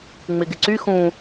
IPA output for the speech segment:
ŋ͡mɪɡɪǀy xũ

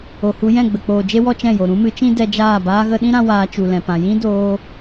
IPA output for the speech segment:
o˨hu˧ jɛ̃˦˨ɡ͡bə˨k͡poː˨d͡ʒe˦ wɔ˦t͡ʃɛ̃˦˨jo˨ ɾũ˦mɨ˨˦t͡ʃĩ˦ dɛ˧d͡ʒaː˦˨ baː˧ɣə˧ɗĩ˦ɾã˧ waː˧t͡ʃu˨lɛ̃˨pã˨ jĩ˦doː˧

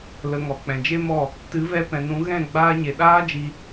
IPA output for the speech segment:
lə˨ ŋɔ˨k͡pɛ̃˨d͡ʒe˦mɔ˦˨ | tɨ˨˦vɛ˧ pɛ̃˨nũ˨˦ ɣɛ̃˦˨ ɡ͡baː˧ɲe˨ ɗaː˦d͡ʒi˧

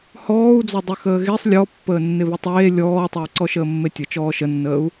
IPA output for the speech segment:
hɔːu̯d͡zɔ dˤyxəːɣesˤ lʲɔpːəːnːɪβɪ tˤeː lʲɔːtˤəː ǀɔʃəːmːetʲə t͡ʃɔːʃənːəːu̯

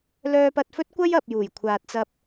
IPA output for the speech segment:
lœː˥pɐ˥t̚ fɵ˥t̚kʷɐ˥jɐ˨p̚ juː˨˩jkʷʰaː˨t̚t͡sɐ˧p̚

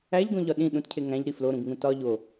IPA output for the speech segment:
æʎɡõʎɒ ɗĩ ɗũtcʰe ŋæ̃ʎɾi floɾũɡŋũ tɒ ʎo

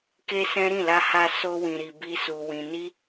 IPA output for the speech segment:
ke˦sɛ̃˦ ɾĩ˦˨la˧ha˧ so˦wĩ˧ɾi˧ bi˦su˧ wĩ˧ ni˦

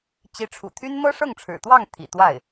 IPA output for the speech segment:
t͡ɕi˧˥ʈ͡ʂʰṵ˨˩t̪ʰy˥n mɤ˥ʂɤ˥˩ŋʈ͡ʂʰɻ̩˨˩t̪wɑ˥˩ŋ t̪ʰḭ˨˩t̪wa˥˩ɪ̯

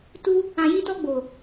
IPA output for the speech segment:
tu˦ | ã˧ji˦ tɔ˧ɡ͡bo˨

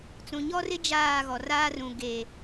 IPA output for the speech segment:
t͡sũ˨ɲɔ˦rɪ˦ d͡ʒaː˦˨ɣɔ˨raː˦ rũ˨ ɡe˨

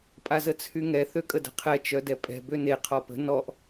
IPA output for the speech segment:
pʼazət͡sʰyŋɛ θøkʼədə̤qʰɛ t͡ʃœdɛpʼɛ̤ bøne qʰɔpə̤ nɔʔ

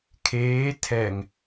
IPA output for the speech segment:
kʰeː tʰɛŋ

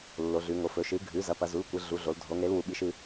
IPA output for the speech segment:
lːo˩˧ɮʉ˩˧ŋo˩˧ fɵ˩˧ʃɨ˩˥ ɡʱʉ˩˥zɐ˩˥ pɐ˩˧zu˩˥lkʷɨ˩˧ ɮu˩˧ɮo˩˧l dʱo˩˧ŋ ɾe˩˥lwu˩˧ɓi˩˧ʃ ɨ˩˧

